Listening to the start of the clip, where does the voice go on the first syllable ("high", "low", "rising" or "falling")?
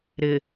low